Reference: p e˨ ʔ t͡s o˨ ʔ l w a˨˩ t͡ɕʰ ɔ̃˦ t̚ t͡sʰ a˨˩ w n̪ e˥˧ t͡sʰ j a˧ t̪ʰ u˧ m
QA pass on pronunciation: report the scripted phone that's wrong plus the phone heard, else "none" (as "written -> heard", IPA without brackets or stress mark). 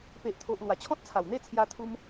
t͡s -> t̪ʰ